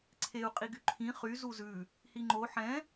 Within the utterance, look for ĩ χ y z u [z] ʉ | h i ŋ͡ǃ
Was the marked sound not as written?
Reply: no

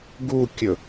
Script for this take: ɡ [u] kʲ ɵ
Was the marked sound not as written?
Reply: no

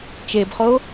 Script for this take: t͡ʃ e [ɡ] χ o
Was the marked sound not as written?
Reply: yes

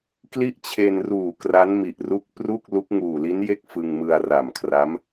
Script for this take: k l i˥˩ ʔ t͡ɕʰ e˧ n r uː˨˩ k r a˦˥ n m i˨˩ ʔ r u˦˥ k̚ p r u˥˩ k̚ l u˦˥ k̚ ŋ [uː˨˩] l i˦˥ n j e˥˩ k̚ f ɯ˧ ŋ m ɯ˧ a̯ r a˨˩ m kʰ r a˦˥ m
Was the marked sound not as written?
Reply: no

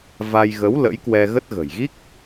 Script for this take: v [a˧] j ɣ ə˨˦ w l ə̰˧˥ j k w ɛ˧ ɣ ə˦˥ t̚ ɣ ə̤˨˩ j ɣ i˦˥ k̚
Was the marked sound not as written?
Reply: no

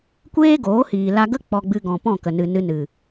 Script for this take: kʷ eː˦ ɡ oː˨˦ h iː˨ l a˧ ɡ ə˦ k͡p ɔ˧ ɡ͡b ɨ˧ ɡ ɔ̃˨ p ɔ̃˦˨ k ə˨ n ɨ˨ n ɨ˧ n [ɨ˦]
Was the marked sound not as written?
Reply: yes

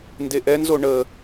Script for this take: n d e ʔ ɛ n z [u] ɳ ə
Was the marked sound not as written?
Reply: yes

